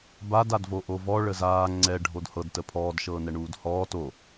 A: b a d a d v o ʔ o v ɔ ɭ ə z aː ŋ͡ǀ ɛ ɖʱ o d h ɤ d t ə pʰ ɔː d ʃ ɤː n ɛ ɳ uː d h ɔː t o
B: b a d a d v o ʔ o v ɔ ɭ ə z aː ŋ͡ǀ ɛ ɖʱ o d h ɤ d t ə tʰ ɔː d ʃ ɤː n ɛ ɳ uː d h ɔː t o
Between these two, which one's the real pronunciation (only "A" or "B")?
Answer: A